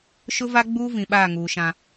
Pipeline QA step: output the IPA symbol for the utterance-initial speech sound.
ʃ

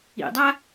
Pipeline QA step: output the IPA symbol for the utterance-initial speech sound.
ḭ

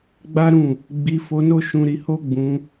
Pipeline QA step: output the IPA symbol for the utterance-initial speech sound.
ɡ͡b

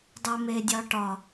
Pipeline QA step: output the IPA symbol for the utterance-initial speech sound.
dˤ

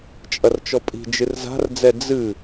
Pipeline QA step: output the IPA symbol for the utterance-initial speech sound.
t͡ʃʼ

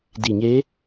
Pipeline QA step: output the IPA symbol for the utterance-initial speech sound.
d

